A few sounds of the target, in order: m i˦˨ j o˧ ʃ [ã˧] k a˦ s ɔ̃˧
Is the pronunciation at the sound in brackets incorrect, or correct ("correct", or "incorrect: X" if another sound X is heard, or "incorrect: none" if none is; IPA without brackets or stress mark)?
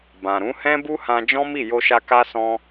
incorrect: a˧